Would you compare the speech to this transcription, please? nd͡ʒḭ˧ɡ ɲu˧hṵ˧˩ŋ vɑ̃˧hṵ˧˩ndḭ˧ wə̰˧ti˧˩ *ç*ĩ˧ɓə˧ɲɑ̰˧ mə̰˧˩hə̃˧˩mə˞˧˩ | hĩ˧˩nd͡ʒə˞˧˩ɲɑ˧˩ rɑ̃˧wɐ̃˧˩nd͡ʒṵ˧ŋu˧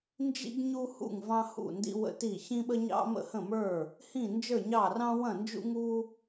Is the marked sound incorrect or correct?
correct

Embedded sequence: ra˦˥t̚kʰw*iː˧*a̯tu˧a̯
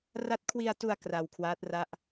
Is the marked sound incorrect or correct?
incorrect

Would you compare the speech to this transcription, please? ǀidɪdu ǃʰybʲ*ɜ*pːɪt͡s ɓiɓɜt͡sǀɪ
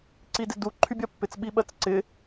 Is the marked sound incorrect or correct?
correct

